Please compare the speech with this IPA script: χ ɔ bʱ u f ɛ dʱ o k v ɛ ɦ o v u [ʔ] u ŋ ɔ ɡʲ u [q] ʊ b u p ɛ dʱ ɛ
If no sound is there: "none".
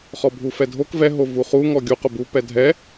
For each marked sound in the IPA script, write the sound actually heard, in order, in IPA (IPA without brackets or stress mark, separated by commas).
χ, q